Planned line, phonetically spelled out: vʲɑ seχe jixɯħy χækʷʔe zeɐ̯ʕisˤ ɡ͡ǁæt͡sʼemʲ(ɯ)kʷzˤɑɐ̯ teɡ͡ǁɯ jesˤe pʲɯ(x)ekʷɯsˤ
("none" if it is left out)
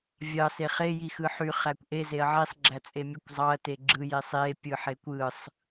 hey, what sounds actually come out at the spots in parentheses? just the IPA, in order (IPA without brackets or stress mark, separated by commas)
ɯ, ħ